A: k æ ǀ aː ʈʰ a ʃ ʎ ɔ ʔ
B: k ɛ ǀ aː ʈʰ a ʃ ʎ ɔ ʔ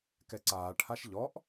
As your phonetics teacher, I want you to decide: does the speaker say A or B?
B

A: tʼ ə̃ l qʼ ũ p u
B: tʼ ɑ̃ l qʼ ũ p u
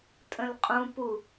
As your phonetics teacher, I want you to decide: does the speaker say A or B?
A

